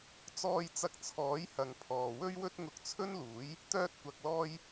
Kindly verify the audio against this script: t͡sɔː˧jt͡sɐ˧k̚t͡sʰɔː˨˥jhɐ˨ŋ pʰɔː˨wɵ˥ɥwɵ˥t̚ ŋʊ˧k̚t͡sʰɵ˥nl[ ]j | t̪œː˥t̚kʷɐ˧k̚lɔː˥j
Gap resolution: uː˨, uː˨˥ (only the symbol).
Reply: uː˨˥